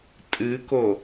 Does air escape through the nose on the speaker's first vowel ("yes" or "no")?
no